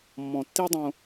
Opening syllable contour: low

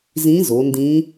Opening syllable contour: rising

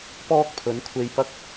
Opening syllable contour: high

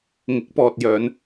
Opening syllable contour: rising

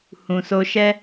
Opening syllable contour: low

